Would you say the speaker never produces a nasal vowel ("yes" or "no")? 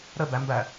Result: yes